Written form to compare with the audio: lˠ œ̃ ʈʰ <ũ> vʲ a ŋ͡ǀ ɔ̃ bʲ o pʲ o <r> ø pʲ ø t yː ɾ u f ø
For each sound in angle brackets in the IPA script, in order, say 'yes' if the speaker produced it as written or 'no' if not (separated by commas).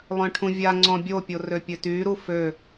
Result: yes, yes